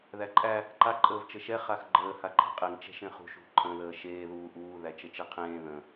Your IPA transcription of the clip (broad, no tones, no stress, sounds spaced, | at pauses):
ð æ ǃʼ æ | ǃ a ǃʼ əː v t͡ʃ ə ʃ ɛ χ a x ɡ͡ǃ əː h a ǃʰ ɛ̤ qʼ e ŋ t͡ʃ ɛ̤ ʃ ẽ χ ṳ ʃ ṳ ǃʰ ə̃ ð əː ʃ eː ð uː ʔ uː ð æ t͡ʃ ə t͡ʃ e qʰ ẽː ð ə̃